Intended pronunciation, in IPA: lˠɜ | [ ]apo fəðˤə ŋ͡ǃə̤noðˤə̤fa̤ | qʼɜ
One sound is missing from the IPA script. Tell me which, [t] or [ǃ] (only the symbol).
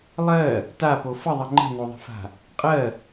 t